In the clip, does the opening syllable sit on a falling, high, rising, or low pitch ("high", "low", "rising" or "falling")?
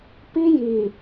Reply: high